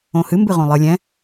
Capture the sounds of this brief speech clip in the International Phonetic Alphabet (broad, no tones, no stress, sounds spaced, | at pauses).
õ h ɨ m b ɨ ʁ õ lˠ ɨ lʲ ɛ̃